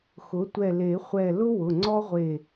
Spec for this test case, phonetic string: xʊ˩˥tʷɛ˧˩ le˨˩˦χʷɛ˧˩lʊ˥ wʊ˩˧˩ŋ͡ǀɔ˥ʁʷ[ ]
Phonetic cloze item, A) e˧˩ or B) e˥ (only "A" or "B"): A